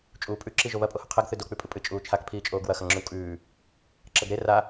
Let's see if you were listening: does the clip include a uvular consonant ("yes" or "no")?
yes